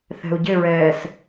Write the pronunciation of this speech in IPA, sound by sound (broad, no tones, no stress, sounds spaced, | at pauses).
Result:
θ ɛ̤ u̯ ɟ ɪ ɹ ɛː s